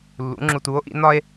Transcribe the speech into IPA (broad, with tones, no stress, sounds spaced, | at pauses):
lː ṵ˨˥ ŋ͡ǁ u˧ t u˨˥ o̯ ʔ ḭ˨˥ n ɒ˥ e̯